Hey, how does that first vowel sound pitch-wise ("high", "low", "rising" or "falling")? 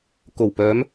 low